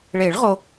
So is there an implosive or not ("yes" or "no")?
no